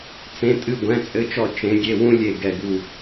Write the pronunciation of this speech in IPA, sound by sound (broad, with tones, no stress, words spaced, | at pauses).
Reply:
t͡sẽ˩˧˩tʼɨ˧˩ɡʷɛ̃˩˧˩ t͡sʼɘ˩˧˩t͡ʃɔ˧˩ t͡ʃẽ˨˦ ɡʲe˩˧˩wũ˦ lʲe˧˩ ɡɛ˧˩ɡu˧˩